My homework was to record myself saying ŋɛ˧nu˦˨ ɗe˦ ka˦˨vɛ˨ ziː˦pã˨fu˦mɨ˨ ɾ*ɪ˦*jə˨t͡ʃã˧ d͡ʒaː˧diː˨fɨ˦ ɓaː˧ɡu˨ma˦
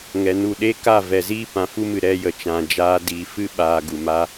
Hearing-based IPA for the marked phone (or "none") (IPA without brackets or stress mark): ɛ˦